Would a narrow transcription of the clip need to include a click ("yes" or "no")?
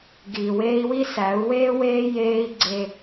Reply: yes